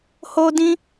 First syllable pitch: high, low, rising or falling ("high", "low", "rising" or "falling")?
high